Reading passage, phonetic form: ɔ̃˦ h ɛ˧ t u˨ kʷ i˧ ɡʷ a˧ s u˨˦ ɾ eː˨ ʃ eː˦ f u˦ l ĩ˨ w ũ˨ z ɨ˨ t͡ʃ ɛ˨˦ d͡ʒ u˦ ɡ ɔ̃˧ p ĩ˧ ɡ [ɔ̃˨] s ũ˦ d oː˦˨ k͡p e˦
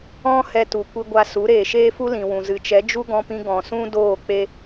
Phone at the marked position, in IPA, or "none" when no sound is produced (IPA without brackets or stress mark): ɔ̃˨